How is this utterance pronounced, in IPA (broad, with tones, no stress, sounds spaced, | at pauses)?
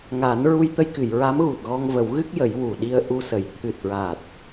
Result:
ŋ a˨˩˦ n ɹ u˧ j t̪ ə˧ j k ɨ˨˩˨ j ɹ a˧˥ m ɣ u˨˩ t̚ ɣ ɔ˧ ŋ v ə˨˩˦ w ɣ ɨ˦˥ k̚ j ə˨˩˦ j w u˨˩ ɗ i˧ ə̯ ʔ u˧ s ə˨˩˨ j t̪ʰ ɨ˨˩ t̚ ɹ a˨˩ t̚